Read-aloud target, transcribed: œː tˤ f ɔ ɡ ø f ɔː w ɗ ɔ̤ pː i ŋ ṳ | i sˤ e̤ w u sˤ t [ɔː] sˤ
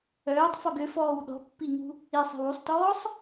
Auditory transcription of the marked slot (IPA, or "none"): ɔː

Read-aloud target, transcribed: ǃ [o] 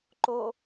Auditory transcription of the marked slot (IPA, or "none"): o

